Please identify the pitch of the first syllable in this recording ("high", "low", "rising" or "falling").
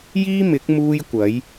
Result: high